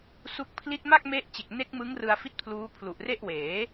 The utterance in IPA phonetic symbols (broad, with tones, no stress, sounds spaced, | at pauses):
s u˦˥ k̚ pʰ l i˥˩ t̚ m a˥˩ k̚ m e˦˥ ʔ t͡ɕ e˨˩ k̚ n e˦˥ k̚ m ɯ˦˥ ŋ r ɯ˧ a̯ f i˦˥ t̚ pʰ l uː˦˥ pʰ l u˨˩ ʔ r e˥˩ ʔ w eː˩˦